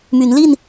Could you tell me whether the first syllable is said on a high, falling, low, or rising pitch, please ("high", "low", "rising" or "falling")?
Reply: rising